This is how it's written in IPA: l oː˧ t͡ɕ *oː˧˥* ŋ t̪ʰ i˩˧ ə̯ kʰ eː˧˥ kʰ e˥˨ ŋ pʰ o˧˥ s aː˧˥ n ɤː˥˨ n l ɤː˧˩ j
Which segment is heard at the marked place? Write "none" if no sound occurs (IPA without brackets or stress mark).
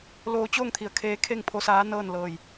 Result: oː˥˨